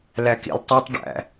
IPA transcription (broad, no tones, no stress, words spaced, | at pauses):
lækḭltˤitˤ ɖæ̰